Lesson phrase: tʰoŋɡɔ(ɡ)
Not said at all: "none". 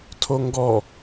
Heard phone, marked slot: none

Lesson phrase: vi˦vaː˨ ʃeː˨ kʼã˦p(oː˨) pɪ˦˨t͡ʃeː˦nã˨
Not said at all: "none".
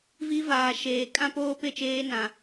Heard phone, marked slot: oː˦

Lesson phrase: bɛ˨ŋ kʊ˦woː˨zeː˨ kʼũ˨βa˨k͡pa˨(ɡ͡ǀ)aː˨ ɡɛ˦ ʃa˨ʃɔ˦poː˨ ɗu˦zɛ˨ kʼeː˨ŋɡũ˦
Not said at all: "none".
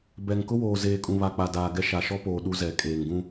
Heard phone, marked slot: d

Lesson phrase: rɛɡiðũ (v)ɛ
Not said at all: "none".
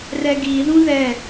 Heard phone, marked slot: ð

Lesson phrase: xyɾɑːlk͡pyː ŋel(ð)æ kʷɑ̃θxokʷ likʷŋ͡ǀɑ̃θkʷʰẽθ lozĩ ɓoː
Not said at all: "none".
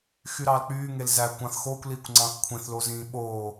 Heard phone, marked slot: z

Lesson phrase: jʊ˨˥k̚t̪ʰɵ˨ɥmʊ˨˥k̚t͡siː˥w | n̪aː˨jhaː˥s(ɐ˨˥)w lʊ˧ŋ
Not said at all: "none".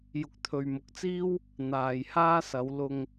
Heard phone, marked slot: ɐ˨˧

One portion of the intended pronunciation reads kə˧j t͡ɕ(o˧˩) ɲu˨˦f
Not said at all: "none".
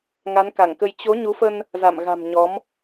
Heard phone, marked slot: o˨˦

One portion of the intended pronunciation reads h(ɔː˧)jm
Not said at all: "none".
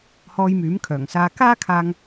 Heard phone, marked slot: ɔː˧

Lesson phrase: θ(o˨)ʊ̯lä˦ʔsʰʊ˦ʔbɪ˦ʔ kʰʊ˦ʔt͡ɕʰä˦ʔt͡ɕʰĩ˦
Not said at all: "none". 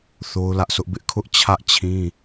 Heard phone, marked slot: o˦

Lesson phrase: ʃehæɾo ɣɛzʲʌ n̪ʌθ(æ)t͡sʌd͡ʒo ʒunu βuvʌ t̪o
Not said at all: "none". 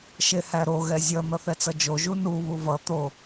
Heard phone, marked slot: ɛ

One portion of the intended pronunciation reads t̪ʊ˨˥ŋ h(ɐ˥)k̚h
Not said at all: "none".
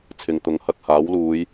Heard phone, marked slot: ɐ˧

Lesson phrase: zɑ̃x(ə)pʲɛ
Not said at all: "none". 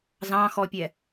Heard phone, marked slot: ɔ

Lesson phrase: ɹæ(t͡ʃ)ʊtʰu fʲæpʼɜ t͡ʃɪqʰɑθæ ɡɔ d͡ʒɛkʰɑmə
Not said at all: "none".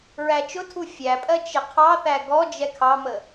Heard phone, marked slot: t͡ʃ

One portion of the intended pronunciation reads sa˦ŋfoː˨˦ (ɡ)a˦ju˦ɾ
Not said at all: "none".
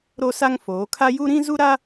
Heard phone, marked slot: kʰ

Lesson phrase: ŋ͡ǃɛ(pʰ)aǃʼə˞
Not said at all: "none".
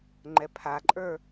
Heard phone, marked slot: pʰ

